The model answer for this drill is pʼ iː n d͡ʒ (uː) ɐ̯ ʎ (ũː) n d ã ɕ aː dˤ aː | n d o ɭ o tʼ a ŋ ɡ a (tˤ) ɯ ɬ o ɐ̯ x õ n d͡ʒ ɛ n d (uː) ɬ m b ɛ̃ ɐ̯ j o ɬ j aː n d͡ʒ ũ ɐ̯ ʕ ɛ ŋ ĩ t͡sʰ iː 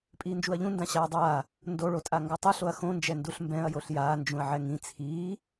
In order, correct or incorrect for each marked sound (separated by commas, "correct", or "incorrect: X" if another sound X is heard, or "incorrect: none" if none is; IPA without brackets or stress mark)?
incorrect: u, incorrect: ũ, correct, incorrect: u